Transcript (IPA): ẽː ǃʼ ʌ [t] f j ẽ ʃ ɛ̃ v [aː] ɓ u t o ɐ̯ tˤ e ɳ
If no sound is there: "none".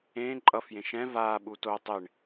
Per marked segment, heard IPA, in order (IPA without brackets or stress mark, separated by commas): none, aː